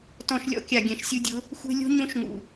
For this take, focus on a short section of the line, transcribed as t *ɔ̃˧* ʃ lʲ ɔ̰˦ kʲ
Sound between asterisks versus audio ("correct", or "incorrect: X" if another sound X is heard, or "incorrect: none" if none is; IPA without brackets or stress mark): correct